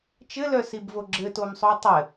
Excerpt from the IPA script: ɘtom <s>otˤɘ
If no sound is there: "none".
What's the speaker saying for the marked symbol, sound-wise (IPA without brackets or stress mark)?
sˤ